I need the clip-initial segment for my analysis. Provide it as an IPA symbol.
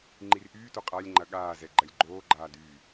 ŋ͡ǃ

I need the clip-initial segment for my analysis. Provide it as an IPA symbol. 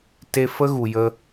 t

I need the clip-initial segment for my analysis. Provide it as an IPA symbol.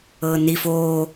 ɤ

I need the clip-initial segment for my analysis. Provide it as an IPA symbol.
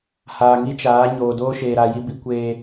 h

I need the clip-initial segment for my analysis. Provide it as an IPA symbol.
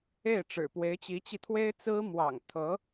e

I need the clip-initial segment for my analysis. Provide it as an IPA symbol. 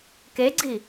k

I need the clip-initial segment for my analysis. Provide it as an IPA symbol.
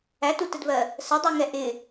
æ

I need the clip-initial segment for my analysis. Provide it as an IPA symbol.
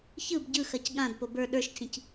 ç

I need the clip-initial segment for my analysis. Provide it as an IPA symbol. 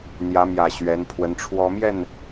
n̪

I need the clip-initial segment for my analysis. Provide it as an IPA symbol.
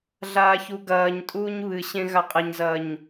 ɮ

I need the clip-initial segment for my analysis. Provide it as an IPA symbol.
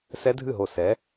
s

